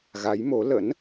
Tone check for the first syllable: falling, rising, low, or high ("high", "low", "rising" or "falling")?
rising